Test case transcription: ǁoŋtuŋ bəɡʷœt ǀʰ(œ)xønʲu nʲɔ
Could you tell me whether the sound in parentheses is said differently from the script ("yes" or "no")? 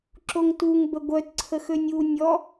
yes